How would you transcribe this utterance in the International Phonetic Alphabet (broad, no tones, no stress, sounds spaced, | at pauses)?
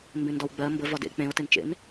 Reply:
m b ẽ n d ɒ w ɡ͡b ɜ m b ə v ɒ d ḛ k͡p ẽ o̯ t e n t͡ʃ ḛ n